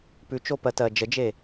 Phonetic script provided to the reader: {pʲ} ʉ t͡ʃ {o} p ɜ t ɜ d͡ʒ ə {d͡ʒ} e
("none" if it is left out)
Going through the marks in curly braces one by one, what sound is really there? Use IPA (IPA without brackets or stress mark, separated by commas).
p, o, d͡ʒ